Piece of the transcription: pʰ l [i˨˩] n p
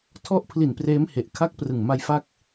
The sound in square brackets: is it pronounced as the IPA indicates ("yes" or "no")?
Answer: yes